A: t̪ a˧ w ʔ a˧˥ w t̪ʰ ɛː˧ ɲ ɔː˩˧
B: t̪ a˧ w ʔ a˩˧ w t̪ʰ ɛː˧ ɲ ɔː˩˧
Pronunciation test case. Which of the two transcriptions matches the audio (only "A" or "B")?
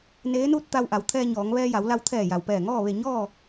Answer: B